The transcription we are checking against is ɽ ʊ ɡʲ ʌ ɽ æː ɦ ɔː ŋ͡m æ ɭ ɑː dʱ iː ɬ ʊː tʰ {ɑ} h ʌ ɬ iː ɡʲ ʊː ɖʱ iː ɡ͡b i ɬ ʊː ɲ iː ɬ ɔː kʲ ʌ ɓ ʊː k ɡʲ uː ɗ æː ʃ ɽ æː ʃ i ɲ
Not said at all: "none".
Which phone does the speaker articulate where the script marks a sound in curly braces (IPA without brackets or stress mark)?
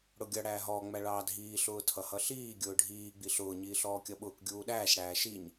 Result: ʌ